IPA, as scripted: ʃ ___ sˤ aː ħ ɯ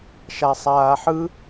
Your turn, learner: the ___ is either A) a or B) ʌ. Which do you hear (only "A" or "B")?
A